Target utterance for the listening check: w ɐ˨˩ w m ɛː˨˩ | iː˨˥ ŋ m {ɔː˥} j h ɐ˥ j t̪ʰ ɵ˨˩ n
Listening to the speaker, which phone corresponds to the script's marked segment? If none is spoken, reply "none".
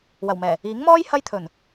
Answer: ɔː˥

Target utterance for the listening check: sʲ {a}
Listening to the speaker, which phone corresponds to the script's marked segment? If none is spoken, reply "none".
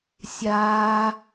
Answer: aː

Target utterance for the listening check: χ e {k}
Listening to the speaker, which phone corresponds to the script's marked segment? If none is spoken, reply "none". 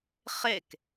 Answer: k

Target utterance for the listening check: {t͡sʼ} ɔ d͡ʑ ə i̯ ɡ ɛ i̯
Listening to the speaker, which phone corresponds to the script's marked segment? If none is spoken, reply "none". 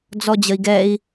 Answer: d͡z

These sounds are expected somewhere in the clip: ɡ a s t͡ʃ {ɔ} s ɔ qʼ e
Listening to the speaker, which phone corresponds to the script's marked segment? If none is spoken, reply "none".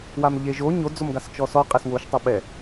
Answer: ɔ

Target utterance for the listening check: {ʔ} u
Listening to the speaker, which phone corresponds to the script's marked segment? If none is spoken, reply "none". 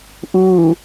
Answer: ʔ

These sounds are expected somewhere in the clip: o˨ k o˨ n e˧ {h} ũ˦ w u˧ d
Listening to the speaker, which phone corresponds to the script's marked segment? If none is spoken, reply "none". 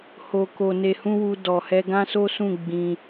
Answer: h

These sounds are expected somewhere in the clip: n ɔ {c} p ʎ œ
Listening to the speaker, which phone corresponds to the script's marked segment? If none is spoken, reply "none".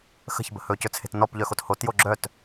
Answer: none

